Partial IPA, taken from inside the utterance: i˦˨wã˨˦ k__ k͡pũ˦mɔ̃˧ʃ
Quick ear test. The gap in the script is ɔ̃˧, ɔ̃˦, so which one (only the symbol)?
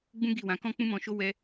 ɔ̃˦